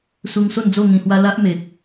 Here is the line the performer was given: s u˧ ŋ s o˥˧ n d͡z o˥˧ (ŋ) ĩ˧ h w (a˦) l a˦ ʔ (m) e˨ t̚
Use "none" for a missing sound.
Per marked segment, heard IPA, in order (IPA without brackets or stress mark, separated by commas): ŋ, a˦, m